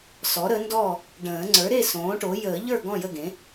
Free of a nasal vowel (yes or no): no